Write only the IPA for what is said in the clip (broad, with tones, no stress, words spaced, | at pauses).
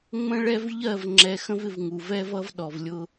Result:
ŋ͡mə̃˦ɭɛ˦v ʎɜ˦˨v ŋ͡ǁɛ˨xə̃˦v ɪ˦vŋu˨v ɛ˦vʌ˦v ɗɔ˨vlʲʊ˦